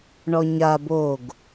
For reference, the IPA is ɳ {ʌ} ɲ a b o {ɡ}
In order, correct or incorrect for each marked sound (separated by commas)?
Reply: incorrect, correct